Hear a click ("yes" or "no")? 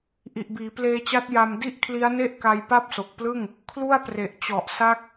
no